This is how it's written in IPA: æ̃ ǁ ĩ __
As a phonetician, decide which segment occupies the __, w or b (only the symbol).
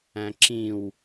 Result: w